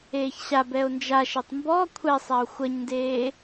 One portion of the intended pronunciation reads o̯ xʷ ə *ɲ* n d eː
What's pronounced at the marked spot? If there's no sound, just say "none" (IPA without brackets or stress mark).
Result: ɲ